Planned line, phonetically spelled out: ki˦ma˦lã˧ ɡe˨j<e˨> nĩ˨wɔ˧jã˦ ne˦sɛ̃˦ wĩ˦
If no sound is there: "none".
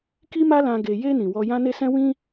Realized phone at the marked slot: e˧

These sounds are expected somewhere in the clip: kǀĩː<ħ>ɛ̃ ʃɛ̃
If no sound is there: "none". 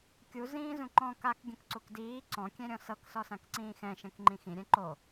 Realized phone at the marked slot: x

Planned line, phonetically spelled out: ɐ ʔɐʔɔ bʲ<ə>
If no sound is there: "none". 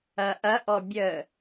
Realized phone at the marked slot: ə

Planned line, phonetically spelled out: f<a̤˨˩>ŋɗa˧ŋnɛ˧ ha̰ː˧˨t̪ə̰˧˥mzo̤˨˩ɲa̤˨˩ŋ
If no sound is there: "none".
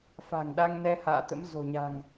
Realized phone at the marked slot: a̤˨˩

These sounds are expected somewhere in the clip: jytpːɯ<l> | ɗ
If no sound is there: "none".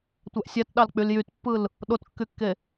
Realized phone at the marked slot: l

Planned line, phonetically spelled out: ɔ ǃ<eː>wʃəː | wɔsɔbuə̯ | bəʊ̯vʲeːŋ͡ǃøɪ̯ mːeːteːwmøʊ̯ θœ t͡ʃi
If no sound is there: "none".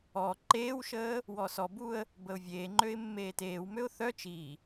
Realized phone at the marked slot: eː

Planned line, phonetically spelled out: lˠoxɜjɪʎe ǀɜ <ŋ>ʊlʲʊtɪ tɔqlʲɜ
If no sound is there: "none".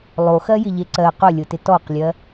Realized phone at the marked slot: q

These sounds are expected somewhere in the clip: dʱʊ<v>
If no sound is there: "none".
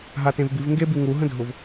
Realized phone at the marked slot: v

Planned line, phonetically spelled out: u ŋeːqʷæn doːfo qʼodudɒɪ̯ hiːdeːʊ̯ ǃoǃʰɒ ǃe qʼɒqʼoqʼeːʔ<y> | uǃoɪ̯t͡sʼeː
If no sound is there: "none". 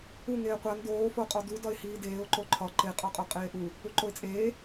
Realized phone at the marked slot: u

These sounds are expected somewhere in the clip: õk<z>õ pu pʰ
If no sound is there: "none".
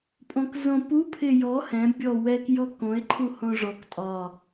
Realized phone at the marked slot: z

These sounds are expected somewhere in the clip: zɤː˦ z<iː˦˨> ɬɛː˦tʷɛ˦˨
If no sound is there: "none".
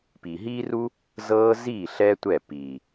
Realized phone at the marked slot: iː˦˨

